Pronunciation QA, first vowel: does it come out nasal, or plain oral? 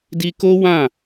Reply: oral